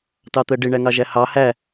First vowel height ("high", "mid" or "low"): low